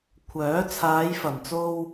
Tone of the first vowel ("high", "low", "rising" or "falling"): rising